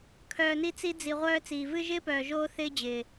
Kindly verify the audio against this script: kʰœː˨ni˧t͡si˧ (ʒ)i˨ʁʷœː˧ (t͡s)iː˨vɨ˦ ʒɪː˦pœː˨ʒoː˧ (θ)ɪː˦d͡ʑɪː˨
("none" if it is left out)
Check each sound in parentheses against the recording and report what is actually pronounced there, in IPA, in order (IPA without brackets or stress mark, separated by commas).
d͡z, t͡s, θ